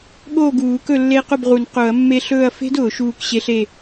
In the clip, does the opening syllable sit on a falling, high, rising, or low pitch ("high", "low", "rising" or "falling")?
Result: falling